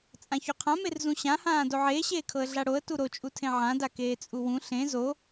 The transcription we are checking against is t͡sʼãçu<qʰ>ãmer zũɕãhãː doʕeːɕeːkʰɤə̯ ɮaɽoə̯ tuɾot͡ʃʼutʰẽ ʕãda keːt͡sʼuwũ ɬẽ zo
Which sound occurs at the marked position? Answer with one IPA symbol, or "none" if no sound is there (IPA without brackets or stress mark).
qʰ